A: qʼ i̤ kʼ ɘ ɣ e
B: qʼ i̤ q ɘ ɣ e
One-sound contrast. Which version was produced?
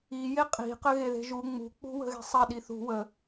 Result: B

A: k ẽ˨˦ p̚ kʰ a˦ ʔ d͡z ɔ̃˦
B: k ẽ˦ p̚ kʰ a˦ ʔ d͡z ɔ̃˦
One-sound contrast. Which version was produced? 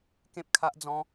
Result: B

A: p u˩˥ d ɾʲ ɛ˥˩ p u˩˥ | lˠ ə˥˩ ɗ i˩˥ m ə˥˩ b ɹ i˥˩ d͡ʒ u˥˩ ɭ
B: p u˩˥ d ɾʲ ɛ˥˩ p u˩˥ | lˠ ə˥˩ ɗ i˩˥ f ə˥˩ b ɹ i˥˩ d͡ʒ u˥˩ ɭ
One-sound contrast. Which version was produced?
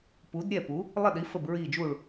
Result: B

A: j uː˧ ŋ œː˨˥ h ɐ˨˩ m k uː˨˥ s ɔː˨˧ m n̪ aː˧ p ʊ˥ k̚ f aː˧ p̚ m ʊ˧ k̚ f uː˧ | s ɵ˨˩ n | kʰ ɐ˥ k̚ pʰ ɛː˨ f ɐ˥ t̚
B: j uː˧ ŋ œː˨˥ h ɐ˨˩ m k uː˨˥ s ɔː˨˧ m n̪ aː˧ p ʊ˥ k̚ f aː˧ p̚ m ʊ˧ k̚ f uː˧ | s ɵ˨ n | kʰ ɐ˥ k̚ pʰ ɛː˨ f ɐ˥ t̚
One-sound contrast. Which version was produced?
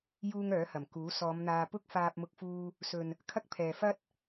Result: B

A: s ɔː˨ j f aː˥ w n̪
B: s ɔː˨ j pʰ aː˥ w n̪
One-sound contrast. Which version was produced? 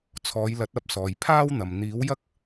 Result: B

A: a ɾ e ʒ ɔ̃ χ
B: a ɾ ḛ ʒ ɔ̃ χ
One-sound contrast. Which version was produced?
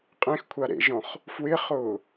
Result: B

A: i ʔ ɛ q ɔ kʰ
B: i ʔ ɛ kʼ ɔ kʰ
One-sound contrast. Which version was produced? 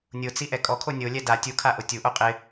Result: B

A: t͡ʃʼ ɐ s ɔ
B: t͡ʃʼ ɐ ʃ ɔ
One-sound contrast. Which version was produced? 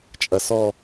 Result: A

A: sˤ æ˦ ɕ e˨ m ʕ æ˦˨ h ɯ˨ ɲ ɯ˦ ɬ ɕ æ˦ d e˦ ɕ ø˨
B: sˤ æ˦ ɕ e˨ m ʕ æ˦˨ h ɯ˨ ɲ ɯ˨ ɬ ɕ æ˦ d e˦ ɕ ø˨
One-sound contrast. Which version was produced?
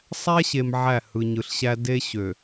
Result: B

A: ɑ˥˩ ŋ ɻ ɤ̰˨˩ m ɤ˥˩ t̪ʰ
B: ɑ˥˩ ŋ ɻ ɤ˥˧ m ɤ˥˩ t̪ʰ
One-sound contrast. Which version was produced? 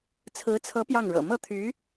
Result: A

